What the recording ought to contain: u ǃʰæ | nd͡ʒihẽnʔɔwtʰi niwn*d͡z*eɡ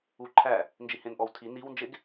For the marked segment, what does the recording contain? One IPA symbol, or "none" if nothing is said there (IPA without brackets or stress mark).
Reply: d͡ʒ